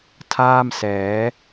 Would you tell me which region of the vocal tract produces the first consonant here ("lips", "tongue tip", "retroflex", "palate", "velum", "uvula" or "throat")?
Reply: tongue tip